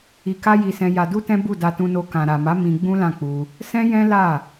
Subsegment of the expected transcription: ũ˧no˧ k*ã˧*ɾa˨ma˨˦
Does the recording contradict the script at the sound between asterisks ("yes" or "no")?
yes